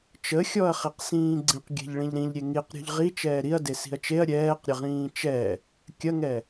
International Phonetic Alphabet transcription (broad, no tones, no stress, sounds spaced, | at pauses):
t͡ʃ ə xʲ ɔ ɐ̯ χ i q s ĩː ɡ͡ǀ ĩ q ɡʲ ɛ̤ ʎ ɭ ĩ ʎ ɾ ĩ ʎ ɾʲ e ŋ i q ɾʲ ɔ̤ ʎ ʁ i t͡ʃ ɛː ɾ i ɐ̯ d e s i̤ ɐ̯ t͡ʃ e ɐ̯ ɾʲ ɛː q ɾʲ ə ʁ ĩː t͡ʃ ɛ | kʲ ɐ ŋ ɛ